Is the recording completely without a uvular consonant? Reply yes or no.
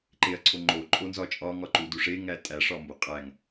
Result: no